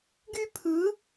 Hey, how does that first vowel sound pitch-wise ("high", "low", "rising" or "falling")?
high